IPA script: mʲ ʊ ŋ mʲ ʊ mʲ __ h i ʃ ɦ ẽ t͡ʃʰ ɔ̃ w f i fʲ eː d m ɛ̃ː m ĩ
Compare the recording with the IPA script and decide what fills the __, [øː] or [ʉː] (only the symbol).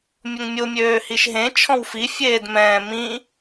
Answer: øː